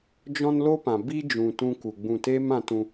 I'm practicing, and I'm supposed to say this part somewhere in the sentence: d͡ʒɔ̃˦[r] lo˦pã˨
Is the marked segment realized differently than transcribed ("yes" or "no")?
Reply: yes